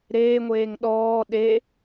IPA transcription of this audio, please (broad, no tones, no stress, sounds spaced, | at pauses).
ɾ eː ŋʷ eː ŋ ɗ ɔː ɗ e